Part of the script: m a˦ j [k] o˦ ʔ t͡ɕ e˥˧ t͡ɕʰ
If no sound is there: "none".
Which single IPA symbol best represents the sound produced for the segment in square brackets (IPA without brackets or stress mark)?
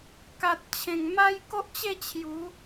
k